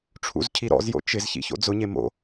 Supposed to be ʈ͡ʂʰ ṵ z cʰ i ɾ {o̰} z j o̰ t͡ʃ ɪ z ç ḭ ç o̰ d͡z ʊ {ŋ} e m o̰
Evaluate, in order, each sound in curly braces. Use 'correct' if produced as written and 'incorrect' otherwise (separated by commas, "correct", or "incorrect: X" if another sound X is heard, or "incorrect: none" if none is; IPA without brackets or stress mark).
incorrect: ɔ̰, incorrect: ɲ